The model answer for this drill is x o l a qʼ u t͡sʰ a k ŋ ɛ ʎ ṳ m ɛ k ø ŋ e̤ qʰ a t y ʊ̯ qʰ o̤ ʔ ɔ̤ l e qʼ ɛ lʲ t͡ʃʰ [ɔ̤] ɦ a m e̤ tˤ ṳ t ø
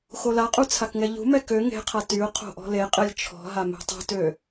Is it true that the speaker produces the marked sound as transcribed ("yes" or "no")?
yes